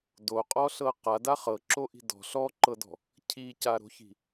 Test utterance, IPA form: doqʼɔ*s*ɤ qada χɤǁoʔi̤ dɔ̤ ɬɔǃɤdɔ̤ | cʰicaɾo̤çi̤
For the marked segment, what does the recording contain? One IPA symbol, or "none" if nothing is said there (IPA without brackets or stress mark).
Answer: ɬ